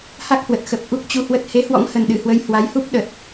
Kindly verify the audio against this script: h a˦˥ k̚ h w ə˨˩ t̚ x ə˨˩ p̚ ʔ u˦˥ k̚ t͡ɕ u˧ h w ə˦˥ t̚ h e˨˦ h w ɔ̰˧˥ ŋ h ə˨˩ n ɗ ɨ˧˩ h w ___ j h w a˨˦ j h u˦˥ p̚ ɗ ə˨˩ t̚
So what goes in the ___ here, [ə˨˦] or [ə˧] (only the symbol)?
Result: ə˨˦